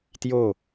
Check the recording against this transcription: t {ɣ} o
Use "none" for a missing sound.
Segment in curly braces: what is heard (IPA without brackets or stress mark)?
j